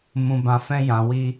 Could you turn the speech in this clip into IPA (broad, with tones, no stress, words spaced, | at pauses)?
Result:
mũ˧bã˧fɛ̃˦ jã˧wi˦